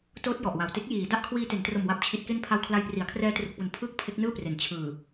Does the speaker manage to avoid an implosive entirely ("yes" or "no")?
yes